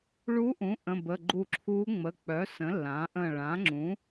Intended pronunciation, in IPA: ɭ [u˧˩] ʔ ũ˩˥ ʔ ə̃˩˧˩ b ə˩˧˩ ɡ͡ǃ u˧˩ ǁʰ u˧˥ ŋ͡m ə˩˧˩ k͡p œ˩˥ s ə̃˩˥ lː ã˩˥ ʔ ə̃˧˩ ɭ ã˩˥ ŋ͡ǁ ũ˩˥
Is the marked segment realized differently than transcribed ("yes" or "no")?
yes